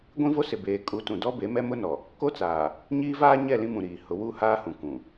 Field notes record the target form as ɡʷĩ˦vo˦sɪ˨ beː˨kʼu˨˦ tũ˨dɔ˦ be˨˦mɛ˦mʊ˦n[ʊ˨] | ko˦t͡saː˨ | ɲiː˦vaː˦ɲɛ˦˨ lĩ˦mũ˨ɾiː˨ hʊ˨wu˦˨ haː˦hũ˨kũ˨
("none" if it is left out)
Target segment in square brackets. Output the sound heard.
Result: ɔ˨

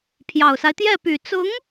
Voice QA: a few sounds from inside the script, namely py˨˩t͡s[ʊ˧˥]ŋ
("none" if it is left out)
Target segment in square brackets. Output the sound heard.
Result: ʊ˧˥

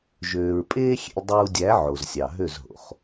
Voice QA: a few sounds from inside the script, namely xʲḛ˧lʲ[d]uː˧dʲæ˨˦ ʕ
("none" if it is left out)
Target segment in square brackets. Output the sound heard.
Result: dˤ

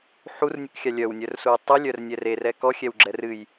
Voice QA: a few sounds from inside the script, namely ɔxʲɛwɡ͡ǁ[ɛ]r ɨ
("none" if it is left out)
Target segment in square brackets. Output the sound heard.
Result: ɛ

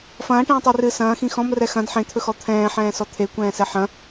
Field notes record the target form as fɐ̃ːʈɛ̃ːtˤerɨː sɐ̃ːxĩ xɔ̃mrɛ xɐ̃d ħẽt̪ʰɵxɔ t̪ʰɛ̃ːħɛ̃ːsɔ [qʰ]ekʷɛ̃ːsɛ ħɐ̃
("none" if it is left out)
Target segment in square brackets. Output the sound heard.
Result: t̪ʰ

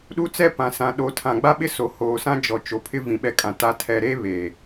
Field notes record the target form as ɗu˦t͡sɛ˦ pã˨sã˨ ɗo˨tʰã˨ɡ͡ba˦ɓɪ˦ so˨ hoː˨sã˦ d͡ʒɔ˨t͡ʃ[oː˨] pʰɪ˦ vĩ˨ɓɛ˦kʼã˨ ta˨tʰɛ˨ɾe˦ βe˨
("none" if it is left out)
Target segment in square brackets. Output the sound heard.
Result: o˨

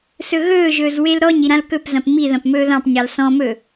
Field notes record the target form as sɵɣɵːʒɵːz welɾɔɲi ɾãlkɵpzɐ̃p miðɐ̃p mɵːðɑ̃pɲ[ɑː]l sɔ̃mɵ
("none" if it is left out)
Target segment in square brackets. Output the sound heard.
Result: ɑ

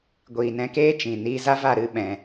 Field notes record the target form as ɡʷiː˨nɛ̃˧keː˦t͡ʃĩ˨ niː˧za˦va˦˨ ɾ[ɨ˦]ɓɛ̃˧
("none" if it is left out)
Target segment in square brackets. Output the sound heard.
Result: ɨ˦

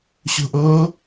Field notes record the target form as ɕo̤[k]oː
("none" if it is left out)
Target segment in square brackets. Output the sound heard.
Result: ʔ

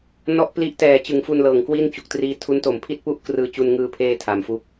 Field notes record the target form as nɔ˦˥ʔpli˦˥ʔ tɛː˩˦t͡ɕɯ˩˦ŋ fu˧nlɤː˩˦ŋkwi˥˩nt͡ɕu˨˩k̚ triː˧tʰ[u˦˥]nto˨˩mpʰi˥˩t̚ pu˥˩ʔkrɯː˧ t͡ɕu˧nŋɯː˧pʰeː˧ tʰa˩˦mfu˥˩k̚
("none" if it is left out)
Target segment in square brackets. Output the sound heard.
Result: u˦˥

